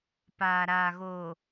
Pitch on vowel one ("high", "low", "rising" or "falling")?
low